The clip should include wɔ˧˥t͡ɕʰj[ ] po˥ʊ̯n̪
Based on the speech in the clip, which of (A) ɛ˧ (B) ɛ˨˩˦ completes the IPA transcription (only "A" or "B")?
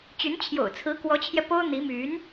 A